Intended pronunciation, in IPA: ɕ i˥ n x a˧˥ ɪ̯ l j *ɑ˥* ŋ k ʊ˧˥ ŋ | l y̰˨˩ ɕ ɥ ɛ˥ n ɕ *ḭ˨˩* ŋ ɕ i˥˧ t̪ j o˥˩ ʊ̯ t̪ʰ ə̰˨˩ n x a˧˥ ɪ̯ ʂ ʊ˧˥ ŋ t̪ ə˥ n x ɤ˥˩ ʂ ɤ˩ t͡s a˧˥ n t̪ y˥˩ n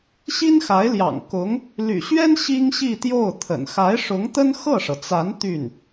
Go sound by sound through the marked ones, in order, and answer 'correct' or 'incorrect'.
incorrect, incorrect

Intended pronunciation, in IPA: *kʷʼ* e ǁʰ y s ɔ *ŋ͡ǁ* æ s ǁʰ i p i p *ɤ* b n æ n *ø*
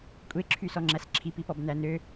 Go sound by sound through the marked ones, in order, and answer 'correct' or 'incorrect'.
correct, correct, incorrect, correct

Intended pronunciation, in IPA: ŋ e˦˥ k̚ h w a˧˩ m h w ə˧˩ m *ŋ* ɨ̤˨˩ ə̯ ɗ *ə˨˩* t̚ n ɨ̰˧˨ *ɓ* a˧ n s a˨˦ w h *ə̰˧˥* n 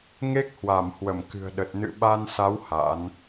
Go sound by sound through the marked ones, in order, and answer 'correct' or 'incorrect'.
incorrect, correct, correct, incorrect

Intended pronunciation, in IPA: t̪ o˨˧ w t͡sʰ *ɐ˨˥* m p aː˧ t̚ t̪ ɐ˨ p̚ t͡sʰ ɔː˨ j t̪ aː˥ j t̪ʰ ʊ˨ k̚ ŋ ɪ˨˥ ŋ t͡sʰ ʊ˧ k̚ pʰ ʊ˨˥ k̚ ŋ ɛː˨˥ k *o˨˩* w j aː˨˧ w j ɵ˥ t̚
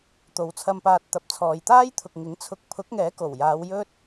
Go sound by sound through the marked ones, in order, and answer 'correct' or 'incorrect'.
incorrect, correct

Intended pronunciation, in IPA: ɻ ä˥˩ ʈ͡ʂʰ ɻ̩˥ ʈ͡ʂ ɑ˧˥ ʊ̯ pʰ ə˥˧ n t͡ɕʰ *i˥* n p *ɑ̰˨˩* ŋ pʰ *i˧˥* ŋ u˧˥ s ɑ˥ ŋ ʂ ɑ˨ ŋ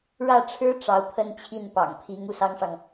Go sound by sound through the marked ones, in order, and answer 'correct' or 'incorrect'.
incorrect, correct, correct

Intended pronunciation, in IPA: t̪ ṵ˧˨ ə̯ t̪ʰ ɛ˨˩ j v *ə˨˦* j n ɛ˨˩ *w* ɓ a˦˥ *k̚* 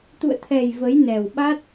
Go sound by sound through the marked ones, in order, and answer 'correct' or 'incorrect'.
correct, correct, incorrect

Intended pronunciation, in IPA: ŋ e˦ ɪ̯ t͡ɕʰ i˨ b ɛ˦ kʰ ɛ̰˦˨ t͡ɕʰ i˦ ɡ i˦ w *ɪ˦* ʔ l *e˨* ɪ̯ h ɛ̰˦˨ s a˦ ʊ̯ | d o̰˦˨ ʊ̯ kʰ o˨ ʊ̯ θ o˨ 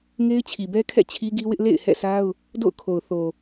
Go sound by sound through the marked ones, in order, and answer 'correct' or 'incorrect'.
correct, incorrect

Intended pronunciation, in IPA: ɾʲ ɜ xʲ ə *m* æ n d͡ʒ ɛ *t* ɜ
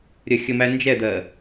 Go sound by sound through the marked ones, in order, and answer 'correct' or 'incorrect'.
correct, incorrect

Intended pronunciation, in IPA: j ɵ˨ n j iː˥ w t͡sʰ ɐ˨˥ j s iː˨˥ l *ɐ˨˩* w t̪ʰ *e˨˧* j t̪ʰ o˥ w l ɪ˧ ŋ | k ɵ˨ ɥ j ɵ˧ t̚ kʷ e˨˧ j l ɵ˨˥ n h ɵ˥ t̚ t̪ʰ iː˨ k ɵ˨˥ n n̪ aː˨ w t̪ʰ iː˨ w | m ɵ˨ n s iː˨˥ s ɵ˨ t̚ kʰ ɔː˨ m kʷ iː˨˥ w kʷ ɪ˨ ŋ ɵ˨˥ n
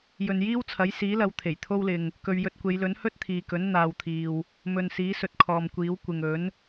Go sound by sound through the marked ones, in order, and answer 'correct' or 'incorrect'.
incorrect, incorrect

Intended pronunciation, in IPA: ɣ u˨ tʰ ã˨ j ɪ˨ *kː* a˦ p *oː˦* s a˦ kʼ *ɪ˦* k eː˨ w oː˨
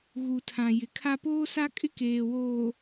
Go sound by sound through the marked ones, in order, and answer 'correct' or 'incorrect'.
incorrect, correct, correct

